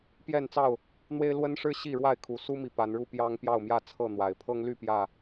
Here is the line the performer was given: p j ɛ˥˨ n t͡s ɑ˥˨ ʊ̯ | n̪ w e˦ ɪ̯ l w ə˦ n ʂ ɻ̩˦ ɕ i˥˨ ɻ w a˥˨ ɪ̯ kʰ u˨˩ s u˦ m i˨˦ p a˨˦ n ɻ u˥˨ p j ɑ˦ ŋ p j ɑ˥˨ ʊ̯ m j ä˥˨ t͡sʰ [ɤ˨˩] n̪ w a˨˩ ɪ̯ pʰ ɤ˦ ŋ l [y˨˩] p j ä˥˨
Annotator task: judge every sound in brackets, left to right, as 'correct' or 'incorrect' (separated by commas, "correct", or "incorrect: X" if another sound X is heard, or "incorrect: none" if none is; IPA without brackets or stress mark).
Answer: incorrect: ɤ˥˨, incorrect: y˥˨